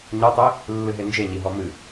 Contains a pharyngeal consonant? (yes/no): no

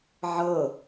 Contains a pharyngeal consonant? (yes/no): yes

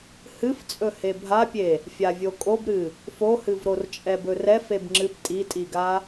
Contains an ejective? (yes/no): yes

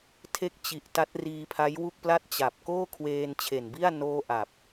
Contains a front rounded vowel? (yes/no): no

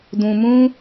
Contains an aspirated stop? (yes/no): no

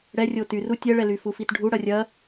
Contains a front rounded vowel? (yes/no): yes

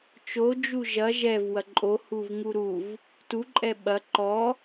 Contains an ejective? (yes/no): yes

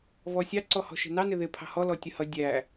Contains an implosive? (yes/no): no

